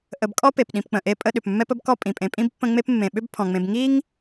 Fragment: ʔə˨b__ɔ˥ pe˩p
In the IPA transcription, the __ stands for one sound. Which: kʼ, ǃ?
kʼ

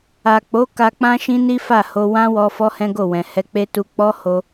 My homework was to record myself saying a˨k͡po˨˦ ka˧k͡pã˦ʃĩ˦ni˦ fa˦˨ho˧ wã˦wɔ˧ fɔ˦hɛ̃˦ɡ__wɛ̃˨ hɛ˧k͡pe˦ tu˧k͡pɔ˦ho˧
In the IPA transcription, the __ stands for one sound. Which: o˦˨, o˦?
o˦˨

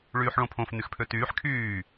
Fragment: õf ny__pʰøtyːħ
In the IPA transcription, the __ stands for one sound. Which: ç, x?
x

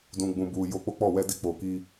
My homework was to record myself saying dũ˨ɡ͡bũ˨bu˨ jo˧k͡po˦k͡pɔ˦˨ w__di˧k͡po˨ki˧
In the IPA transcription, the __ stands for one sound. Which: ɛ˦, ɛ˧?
ɛ˧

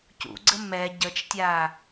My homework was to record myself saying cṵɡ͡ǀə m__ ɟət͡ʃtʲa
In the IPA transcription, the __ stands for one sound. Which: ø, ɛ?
ɛ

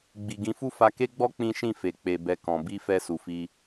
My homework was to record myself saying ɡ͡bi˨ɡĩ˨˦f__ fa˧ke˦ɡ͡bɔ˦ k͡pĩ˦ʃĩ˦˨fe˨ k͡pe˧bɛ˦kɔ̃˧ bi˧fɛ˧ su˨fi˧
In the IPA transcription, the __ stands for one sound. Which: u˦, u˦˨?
u˦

